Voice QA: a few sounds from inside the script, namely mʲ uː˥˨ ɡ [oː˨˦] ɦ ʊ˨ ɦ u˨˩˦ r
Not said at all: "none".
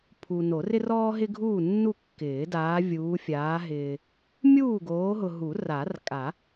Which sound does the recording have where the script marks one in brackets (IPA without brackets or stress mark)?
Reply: oː˨˦